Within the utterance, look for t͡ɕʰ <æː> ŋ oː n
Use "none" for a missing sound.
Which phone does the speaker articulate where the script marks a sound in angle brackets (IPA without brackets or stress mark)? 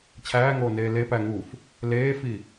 æː